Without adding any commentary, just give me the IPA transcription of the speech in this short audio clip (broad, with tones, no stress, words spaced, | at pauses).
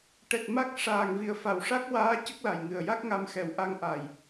ʈɛ˨˩t̚ ma˦˥k̚ ʂaː˨˩ŋvi˨˩ə̯ fa˨˩wʂa˦˥k̚waː˧˥ cə˦˥k̚la˨˩jŋɨ˨˩ə̯ja˦˥k̚ ŋa˧mxɛ˨˩wʔa˧ŋ ʔa˨˩j